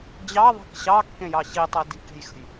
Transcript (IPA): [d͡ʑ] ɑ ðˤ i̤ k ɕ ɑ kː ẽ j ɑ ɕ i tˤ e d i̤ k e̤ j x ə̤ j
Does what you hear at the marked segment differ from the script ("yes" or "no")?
no